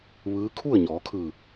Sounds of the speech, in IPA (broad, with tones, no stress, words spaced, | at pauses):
ʋɯː˧˥ kʰu˥˨ə̯ɲɔː˩˧kʰɯː˧˩